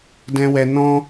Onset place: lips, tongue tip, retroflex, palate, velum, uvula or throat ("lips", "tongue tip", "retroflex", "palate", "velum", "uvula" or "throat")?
tongue tip